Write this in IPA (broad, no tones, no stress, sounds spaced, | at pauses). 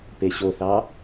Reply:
p e ɕ o θ ɑ